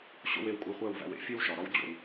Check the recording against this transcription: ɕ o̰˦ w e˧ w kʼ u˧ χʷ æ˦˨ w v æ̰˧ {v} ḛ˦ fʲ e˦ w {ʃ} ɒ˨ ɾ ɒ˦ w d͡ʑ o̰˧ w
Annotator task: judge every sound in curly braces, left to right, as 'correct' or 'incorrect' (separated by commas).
incorrect, correct